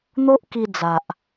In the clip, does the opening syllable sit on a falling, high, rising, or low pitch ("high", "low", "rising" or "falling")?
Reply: high